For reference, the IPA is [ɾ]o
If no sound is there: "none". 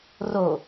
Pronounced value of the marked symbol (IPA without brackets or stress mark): r